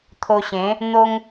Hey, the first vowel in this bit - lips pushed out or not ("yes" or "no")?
yes